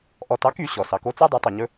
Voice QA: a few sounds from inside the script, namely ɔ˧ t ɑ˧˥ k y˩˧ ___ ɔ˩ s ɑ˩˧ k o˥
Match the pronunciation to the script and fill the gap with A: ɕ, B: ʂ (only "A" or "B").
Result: A